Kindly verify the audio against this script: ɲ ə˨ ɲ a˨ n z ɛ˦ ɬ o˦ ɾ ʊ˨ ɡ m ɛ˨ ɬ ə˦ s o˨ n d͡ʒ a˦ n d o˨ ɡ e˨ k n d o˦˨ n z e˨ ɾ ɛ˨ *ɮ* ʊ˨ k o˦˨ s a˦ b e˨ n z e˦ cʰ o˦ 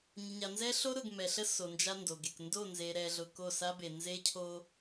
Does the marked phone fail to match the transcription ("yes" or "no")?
no